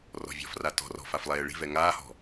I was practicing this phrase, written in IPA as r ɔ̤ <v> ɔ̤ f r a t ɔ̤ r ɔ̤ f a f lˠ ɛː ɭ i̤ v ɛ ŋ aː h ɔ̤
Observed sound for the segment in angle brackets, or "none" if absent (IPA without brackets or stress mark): vʲ